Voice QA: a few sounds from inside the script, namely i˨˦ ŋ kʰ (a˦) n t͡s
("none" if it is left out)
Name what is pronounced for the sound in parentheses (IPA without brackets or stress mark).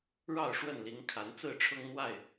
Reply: a˨˦